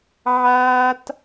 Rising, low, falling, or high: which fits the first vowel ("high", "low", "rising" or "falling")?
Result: high